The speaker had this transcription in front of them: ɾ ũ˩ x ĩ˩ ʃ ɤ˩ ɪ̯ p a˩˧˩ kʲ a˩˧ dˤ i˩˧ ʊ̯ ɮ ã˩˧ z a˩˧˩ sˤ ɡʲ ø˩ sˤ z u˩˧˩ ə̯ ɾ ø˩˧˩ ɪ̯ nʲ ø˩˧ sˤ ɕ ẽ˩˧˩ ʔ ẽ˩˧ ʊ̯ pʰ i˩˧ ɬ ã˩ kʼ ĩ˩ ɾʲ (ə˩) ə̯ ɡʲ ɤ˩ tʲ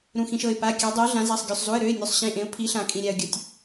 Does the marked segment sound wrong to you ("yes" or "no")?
yes